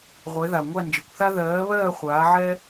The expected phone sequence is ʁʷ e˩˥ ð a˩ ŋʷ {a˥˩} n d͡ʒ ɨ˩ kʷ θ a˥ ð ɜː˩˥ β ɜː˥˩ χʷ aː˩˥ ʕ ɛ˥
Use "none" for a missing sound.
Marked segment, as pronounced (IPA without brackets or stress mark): a˥˩